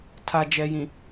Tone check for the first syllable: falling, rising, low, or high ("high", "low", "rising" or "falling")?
low